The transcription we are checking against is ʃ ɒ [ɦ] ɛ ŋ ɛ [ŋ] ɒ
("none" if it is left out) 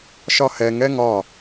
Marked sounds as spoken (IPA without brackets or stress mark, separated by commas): h, ŋ